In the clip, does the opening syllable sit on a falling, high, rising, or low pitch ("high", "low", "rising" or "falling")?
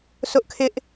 high